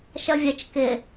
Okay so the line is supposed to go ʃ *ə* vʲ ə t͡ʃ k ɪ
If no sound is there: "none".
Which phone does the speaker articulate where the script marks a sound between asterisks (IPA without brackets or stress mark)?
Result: ʌ